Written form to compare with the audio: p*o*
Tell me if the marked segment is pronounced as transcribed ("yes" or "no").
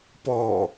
no